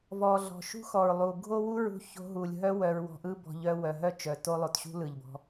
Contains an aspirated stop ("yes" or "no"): no